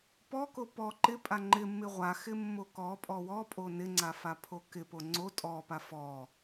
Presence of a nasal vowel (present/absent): absent